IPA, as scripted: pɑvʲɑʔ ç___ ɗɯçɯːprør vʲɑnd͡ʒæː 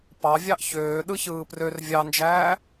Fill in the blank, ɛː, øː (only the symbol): øː